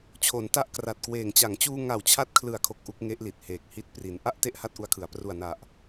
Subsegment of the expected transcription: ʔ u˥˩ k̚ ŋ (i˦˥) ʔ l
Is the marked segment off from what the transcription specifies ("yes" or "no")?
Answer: yes